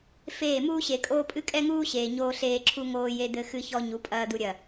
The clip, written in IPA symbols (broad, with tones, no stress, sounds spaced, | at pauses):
f eː˦˨ m uː˦ ɕ e˨ kʼ oː˦ pʼ ɨ˦ kʼ ɛ˦ ŋ uː˦ ɕ eː˨ ɲ oː˦ ɬ eː˦ ǁʰ u˦ ŋ oː˦ j e˦ d̪ ɘ˦ x ɨ˦ ç ɔ˦ ɲ u˨˦ pʼ ɐː˦ d̪ u˦ ɾʲ ɐ˦˨